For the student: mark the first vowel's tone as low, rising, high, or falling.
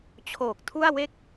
low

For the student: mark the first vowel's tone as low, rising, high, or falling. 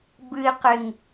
low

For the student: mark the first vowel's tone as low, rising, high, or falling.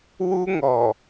high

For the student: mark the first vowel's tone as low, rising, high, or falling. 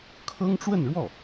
high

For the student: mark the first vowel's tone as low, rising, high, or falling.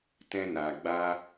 high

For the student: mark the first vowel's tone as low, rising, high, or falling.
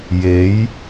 rising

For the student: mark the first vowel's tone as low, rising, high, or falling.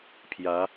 rising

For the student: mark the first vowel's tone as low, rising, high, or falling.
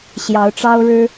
rising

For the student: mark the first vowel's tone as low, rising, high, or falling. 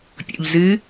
low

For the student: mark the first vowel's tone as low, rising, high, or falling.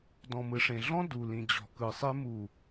low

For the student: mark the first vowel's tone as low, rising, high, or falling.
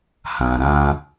low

